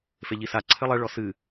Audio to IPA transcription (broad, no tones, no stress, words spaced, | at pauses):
feʎisa ǀʰɘlˠɛ ɭɔsɨ